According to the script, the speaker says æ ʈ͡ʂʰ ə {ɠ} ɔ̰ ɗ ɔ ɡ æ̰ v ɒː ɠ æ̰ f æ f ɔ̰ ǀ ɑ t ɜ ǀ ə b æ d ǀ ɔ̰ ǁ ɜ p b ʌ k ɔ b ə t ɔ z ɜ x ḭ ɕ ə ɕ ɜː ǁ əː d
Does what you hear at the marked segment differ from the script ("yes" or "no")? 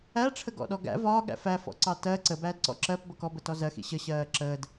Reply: yes